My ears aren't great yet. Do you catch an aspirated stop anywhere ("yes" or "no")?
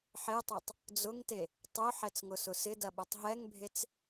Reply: no